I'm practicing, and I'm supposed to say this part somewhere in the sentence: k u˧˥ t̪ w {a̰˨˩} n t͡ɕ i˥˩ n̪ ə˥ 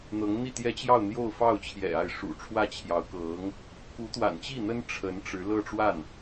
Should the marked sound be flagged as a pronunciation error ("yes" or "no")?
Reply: no